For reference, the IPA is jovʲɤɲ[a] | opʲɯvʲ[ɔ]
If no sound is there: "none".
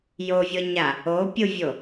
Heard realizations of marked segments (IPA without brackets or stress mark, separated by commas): a, o